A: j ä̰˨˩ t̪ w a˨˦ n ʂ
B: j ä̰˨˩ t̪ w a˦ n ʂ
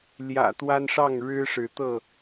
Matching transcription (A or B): B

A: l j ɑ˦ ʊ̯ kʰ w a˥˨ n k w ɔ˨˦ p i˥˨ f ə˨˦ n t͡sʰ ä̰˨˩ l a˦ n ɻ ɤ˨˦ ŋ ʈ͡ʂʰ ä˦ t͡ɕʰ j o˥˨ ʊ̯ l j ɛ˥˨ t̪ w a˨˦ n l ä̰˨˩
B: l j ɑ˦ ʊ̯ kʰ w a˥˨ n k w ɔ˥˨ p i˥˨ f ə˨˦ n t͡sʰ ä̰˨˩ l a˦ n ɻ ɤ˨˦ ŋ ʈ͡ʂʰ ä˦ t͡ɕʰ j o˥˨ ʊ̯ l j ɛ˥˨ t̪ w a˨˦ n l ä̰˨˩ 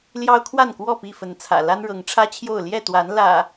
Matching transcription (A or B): B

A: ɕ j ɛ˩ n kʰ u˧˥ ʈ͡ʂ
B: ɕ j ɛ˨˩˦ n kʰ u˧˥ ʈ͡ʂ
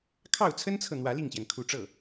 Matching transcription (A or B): A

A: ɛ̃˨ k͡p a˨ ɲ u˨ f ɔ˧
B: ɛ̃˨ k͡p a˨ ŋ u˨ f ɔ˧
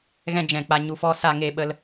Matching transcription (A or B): A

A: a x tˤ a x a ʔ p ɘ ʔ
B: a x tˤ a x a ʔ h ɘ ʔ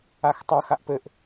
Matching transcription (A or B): A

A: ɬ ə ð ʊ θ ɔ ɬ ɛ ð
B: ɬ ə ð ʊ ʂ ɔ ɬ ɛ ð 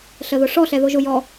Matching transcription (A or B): B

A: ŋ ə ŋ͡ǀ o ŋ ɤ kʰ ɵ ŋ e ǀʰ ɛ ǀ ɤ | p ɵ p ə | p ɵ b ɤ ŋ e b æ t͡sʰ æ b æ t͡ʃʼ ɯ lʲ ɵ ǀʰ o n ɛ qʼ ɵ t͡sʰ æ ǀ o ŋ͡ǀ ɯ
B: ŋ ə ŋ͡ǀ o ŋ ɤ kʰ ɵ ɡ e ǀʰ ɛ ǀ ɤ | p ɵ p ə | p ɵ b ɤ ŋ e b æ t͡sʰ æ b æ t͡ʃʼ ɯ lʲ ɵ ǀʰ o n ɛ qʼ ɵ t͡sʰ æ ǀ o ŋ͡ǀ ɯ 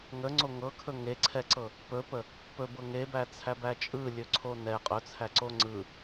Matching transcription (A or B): A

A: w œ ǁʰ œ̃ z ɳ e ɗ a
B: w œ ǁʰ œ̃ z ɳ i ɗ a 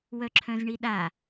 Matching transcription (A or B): B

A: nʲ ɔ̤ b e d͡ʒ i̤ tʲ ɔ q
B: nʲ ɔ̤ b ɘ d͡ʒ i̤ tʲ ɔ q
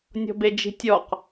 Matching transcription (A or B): A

